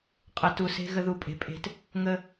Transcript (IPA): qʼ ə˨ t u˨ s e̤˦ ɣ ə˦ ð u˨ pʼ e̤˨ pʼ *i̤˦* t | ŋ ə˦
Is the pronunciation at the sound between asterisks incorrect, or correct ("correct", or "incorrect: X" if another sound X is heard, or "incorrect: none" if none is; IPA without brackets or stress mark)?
incorrect: e̤˦